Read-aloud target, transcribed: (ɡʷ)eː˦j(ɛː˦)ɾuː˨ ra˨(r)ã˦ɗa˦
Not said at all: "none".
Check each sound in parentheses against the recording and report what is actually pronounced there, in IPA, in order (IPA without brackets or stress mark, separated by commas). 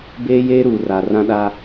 b, eː˦, r